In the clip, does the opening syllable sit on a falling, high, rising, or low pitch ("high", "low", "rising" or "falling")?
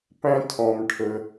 high